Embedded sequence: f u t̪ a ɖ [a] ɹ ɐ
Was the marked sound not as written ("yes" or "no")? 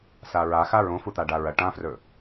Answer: no